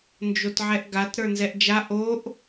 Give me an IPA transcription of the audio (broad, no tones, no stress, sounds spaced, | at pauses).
n d͡ʒ o t ʕ ɛ ʔ ɡ a t ɾ ə˞ n z ɛ ʔ d͡ʒ a ʔ o ʔ